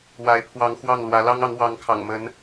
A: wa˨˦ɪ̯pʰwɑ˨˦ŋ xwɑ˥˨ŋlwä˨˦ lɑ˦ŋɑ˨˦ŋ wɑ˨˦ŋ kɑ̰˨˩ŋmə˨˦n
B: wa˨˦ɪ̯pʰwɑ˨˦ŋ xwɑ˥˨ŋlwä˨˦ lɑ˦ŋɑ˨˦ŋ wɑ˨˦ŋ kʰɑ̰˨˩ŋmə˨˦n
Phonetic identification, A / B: B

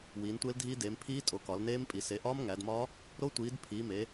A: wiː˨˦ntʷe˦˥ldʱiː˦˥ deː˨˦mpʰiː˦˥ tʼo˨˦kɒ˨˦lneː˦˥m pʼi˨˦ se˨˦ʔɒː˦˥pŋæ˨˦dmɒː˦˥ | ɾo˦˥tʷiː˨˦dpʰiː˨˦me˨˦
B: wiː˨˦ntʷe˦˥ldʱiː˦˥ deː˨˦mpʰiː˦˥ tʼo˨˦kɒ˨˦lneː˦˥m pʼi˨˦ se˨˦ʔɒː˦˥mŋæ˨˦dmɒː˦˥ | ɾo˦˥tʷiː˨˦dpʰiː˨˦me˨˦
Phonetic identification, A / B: B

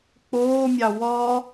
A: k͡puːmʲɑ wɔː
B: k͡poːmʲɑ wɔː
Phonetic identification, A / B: B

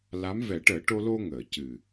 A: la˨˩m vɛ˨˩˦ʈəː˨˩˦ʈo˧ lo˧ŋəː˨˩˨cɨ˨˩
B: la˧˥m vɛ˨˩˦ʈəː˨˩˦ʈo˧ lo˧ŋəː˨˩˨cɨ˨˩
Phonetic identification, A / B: B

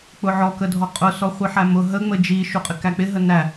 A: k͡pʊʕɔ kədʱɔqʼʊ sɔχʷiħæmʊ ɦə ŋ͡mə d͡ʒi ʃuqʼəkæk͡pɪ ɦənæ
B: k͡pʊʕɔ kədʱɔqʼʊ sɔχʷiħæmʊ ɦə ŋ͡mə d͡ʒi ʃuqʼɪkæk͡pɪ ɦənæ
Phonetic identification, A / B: B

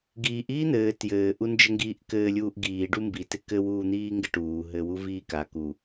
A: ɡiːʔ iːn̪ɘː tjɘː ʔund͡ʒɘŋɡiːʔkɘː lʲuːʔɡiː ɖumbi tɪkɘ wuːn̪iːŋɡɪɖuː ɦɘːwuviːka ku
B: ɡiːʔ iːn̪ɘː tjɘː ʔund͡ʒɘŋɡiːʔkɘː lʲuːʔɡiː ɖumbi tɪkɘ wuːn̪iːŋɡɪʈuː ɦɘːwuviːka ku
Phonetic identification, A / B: B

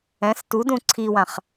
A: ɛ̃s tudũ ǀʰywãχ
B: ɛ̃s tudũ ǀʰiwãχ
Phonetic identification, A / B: B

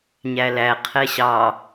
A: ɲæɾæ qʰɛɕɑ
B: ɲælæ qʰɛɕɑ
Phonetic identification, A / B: B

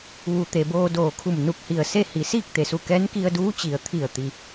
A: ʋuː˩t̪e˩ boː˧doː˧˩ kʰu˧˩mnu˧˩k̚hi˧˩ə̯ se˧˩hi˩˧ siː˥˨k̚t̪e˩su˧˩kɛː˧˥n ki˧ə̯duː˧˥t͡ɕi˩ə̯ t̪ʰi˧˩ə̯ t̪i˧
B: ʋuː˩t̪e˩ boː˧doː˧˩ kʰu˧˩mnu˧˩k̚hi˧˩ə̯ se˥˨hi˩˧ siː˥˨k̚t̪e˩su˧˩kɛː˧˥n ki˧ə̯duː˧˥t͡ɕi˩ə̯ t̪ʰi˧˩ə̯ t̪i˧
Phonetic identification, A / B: B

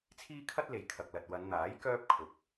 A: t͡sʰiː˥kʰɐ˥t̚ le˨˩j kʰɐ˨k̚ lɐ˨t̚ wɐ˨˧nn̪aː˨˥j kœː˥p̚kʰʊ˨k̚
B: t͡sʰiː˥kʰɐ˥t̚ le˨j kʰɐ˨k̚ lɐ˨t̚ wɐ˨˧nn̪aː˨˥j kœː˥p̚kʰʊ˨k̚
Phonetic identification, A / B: B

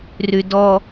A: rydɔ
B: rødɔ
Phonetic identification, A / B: A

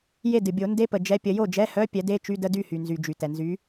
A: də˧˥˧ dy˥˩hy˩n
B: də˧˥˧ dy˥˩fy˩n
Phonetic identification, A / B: A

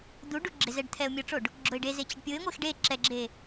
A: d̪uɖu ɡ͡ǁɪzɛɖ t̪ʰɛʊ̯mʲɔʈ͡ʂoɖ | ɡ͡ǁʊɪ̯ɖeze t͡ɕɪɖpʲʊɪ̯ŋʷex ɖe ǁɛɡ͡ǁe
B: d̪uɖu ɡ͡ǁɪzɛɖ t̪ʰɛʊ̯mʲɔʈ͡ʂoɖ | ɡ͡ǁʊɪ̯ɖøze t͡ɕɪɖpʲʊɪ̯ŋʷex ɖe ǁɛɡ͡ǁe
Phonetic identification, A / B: A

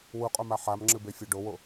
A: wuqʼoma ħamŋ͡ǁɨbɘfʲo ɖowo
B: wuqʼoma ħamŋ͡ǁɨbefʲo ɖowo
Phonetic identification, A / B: B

